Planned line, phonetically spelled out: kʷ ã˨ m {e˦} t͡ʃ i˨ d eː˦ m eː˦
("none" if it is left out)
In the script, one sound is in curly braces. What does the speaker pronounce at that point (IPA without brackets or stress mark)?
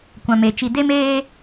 e˨